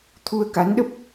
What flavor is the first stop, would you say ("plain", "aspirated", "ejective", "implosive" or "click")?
aspirated